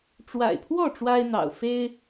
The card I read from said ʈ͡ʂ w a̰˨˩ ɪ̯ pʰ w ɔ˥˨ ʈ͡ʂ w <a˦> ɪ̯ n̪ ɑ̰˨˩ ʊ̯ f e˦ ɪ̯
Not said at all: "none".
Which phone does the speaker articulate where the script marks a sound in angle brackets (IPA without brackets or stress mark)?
a˦